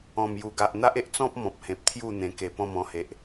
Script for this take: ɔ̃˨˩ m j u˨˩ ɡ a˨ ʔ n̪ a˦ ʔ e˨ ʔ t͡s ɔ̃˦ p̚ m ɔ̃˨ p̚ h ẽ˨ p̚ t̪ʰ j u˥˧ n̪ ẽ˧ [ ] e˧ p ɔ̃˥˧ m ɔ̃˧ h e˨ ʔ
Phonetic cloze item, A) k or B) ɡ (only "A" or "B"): A